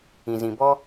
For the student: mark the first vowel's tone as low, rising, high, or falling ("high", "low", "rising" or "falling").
low